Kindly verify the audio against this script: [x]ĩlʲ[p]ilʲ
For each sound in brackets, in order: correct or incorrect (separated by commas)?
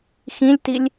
correct, incorrect